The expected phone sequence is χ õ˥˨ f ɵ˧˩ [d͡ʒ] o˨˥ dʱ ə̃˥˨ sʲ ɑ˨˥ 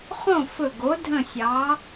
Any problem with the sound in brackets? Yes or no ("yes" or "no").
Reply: yes